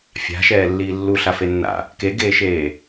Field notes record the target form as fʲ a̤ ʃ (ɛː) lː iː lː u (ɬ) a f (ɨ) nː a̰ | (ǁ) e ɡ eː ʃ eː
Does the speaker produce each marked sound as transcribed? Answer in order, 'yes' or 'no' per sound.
yes, yes, no, no

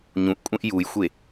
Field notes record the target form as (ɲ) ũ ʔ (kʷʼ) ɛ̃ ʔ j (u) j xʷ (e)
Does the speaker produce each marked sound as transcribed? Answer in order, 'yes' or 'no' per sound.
yes, yes, yes, yes

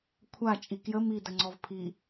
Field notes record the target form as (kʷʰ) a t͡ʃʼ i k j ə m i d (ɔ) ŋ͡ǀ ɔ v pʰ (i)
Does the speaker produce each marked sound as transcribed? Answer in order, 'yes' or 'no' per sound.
yes, no, yes

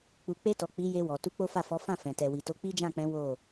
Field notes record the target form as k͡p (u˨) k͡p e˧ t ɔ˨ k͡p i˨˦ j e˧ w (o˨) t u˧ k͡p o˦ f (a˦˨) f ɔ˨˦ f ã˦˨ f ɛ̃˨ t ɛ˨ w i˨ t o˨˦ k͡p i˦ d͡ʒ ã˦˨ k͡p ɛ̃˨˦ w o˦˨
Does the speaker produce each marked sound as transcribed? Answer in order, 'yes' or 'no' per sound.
yes, no, yes

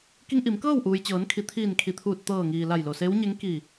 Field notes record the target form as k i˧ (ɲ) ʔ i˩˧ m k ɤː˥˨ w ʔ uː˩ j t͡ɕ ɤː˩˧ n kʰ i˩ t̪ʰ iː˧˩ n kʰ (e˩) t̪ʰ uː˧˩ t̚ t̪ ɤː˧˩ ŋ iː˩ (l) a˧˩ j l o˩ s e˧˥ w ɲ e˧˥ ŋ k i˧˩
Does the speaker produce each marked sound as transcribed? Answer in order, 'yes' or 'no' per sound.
no, no, yes

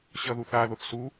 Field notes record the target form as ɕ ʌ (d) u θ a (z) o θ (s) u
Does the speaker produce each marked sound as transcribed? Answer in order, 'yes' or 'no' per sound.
no, no, yes

